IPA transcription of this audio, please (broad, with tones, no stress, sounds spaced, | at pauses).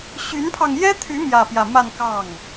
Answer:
ɕ y˧˥ n pʰ ɑ˧ ŋ j ɛ˥ t̪ʰ y˧˥ m j ä˥˧ p j ä˥˧ m a˥˧ n k ɑ˥˩ ŋ